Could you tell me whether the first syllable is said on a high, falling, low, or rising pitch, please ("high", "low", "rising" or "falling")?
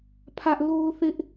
high